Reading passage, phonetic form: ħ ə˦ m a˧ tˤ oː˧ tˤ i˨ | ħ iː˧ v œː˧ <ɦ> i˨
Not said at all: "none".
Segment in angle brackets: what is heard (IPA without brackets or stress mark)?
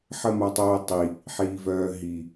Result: ɦ